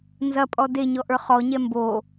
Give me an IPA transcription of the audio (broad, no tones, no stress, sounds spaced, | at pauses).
n z ɐ pʼ ɔ d e ɲ ɔ ʔ ə˞ χ ɔ ɲ ɛ m b o